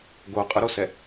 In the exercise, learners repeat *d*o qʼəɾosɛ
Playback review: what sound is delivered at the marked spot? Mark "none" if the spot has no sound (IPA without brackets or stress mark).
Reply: ɡ